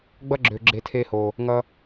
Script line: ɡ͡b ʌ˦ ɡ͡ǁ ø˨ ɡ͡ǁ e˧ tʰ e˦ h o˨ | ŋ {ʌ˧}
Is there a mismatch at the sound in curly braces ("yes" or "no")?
no